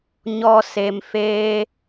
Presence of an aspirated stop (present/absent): absent